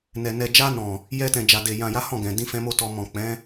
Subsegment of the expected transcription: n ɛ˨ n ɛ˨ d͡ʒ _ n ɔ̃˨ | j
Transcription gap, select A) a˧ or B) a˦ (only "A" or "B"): A